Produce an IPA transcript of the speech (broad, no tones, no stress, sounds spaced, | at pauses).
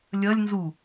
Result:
lʲ ɐ lʲ n z u